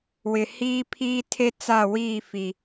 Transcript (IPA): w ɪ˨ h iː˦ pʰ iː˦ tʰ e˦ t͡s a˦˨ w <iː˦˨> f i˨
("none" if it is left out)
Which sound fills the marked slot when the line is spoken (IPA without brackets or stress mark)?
iː˦˨